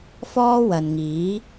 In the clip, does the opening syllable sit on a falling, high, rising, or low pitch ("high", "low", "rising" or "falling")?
high